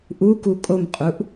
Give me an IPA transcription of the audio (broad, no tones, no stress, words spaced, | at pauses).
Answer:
ʔuku kʼomqʼuʔ